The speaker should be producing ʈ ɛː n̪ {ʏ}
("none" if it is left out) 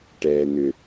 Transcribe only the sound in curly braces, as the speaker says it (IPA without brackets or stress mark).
ʏ